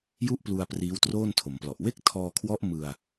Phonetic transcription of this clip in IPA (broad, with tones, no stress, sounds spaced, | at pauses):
j u˥˩ ʔ p l u˧ a̯ p r iː˦˥ w t r oː˥˩ n tʰ o˩˦ m p l ɔ˨˩ ʔ w e˥˩ k̚ tʰ ɔː˧ kʰ w ɔ˦˥ ʔ m ɯ˧ a̯